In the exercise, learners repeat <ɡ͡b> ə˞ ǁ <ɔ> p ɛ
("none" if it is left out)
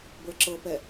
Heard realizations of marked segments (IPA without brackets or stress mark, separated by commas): b, ɤ